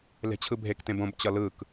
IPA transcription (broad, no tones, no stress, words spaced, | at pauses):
le̤t͡ɕʰɯbʱektẽb õbt͡ɕʌ lɯk